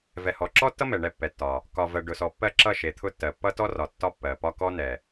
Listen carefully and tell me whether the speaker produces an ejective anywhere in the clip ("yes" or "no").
no